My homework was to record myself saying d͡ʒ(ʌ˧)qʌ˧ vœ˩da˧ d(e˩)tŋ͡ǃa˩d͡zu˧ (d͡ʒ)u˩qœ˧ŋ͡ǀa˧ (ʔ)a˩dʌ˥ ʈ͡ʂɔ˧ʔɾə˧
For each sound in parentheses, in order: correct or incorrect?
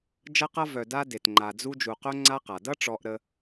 correct, correct, correct, incorrect

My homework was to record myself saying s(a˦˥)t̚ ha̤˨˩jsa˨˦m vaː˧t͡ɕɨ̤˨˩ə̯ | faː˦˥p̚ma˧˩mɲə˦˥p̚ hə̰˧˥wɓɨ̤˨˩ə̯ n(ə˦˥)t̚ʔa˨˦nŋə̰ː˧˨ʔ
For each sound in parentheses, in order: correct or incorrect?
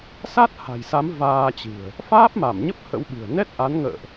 correct, incorrect

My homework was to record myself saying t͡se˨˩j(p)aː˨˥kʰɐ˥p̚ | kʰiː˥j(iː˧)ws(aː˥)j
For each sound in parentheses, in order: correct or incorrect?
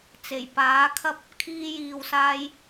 correct, correct, correct

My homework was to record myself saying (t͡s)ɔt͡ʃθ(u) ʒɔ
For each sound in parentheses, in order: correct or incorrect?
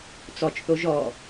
correct, incorrect

